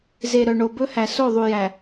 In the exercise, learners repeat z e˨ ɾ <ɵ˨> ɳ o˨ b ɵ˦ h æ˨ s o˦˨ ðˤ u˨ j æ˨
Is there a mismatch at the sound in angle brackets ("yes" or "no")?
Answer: yes